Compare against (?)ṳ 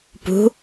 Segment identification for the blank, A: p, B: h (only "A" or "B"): A